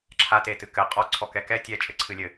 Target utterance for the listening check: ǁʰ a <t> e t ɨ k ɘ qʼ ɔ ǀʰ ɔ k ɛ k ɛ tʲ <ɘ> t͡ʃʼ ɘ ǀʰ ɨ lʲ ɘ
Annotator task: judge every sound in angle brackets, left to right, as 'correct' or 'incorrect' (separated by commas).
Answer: correct, incorrect